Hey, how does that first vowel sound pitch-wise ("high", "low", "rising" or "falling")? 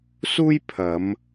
high